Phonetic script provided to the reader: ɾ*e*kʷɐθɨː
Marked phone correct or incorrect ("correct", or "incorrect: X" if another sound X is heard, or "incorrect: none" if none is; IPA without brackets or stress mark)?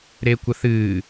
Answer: correct